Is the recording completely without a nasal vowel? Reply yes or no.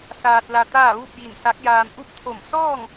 yes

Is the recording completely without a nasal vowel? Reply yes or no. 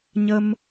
yes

